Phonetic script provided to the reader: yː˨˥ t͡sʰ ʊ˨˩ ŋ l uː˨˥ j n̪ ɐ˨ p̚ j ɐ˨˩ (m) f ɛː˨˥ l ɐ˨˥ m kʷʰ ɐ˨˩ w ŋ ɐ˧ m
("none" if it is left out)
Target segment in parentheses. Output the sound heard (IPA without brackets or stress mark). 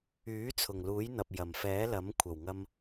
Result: m